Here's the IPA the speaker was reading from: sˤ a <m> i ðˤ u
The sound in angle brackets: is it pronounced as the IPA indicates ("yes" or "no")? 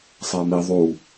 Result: yes